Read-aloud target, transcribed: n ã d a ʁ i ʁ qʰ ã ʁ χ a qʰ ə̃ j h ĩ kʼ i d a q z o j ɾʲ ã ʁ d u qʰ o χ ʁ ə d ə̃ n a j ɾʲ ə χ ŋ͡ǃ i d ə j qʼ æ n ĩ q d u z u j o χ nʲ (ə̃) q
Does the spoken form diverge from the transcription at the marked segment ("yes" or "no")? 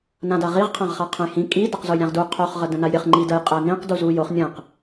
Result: no